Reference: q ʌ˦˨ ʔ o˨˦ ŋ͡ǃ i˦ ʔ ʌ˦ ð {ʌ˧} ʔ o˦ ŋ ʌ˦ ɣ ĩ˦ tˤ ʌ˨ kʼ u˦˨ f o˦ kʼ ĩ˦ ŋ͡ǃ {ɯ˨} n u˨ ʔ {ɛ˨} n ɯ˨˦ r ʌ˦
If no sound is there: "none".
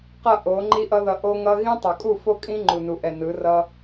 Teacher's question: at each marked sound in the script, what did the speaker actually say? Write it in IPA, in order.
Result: ʌ˧, u˨, ɛ˨

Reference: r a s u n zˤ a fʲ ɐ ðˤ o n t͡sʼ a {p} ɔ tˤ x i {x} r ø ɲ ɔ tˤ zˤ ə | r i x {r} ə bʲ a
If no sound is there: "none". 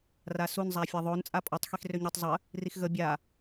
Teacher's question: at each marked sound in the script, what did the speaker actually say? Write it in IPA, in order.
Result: pʼ, x, ɣ

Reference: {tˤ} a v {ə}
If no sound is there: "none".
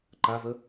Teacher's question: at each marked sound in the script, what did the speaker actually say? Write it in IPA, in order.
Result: ǃ, ə

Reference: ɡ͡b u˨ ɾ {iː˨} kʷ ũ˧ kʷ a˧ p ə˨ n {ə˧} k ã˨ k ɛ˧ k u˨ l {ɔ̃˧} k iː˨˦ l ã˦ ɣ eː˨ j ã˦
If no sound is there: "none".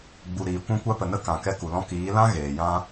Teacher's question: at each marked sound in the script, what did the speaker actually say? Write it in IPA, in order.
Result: iː˨, ə˧, ɔ̃˧

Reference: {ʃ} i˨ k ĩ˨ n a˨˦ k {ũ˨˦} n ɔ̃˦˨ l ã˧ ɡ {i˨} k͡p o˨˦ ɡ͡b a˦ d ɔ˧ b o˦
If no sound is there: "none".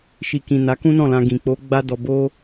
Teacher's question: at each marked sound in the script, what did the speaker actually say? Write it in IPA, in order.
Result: ʃ, ũ˦, ĩ˨

